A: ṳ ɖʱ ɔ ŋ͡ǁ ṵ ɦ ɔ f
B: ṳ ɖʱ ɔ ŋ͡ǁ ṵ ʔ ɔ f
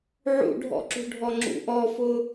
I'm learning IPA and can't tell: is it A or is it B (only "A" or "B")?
B